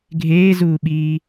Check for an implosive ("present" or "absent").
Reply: present